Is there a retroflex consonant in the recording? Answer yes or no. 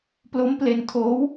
no